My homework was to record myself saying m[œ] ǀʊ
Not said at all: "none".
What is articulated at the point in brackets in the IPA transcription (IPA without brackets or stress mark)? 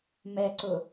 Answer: ɛ